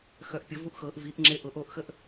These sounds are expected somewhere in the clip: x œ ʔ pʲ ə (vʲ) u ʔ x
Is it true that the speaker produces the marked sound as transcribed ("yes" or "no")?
no